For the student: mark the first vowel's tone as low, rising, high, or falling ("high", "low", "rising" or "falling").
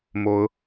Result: rising